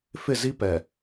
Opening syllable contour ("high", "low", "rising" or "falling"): falling